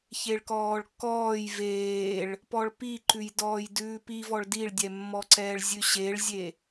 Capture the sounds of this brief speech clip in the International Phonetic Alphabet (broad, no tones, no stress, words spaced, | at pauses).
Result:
çeɭkɔːɭkːɔːj veːɭ | pɔɭpiǃʉj dɔːjdʉːpivɔɭ diɭdʲɛmːɔǀɛːɭ zʲʉɕeɭzʲe